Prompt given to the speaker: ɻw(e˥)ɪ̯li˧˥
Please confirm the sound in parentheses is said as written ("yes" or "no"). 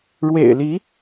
no